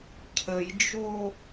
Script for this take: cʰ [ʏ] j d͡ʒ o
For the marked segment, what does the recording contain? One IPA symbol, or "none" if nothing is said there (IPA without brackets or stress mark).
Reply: ə